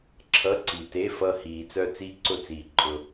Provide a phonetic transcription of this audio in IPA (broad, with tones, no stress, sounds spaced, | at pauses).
ǁʰ ʌ˧˥˧ ǀ i˨ t e˧˥˧ f ʌ˦˨ h iː˨ t͡s œ˦˨ t͡s i˦˥ ǀ ʊ˦˨ t͡s iː˨ ǃʼ ʊ˨